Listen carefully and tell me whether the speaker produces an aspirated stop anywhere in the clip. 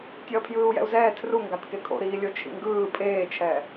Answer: yes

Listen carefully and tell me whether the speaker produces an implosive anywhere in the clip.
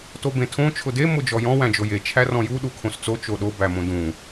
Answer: yes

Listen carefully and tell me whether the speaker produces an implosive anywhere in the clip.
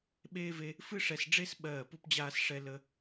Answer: yes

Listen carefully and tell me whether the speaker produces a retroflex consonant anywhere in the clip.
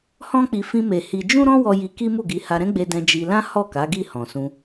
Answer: no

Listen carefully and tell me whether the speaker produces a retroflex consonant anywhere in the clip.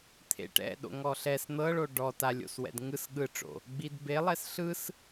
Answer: yes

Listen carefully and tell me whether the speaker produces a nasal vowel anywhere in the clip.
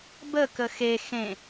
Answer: yes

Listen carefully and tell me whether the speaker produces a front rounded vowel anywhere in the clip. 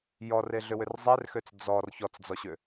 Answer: yes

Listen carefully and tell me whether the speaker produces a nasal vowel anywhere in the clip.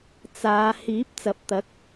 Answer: no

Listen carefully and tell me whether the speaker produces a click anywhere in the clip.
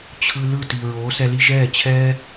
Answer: no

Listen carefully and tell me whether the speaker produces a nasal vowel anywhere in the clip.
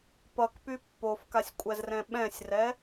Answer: yes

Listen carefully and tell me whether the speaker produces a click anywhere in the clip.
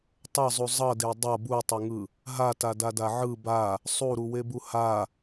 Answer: no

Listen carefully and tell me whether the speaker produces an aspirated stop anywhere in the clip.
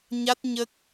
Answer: no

